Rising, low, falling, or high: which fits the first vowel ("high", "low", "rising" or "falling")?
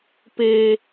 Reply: high